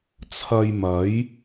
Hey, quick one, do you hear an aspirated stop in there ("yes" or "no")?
yes